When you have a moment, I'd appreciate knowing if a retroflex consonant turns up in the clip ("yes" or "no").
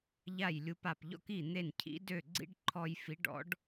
yes